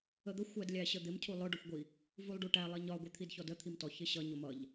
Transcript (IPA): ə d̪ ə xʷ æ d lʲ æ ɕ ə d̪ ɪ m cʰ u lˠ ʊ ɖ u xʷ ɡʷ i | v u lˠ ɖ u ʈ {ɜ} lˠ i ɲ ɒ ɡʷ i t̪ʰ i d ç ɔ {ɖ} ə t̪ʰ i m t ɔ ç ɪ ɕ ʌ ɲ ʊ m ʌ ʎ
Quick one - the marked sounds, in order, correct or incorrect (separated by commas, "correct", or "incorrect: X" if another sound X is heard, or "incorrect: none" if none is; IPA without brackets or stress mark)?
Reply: incorrect: æ, incorrect: d